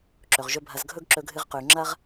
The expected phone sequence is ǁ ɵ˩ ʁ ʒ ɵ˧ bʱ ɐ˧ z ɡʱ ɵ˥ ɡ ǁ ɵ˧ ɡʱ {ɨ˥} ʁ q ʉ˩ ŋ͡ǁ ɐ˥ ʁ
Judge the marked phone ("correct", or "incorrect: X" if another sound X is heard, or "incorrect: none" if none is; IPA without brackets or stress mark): incorrect: ɨ˧